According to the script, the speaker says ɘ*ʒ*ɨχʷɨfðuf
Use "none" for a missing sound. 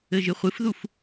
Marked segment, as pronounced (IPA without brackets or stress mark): ʒ